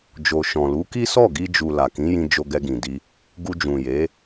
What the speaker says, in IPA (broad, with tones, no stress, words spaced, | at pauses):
d͡ʒo˨ʃɔ̃˨lu˨˦ki˦ sɔ˦˨ɡi˧d͡ʒu˨ la˨kĩ˨˦jĩ˧ d͡ʒo˧ɡɛ˧ɡĩ˨di˧ | ɡu˧d͡ʒũ˨je˨˦